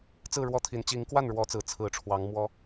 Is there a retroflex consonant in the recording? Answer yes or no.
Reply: yes